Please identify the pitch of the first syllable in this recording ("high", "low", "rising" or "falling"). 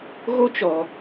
high